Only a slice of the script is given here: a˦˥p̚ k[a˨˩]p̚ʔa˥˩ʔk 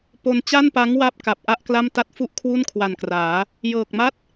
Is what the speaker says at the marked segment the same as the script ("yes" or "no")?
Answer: yes